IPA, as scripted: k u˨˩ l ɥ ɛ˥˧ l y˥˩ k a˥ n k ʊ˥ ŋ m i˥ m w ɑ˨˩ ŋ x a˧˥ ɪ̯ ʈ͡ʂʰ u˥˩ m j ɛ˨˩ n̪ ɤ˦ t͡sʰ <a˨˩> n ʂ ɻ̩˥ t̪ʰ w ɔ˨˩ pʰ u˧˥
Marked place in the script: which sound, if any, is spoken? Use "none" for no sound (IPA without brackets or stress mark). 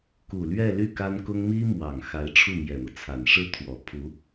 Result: a˨˩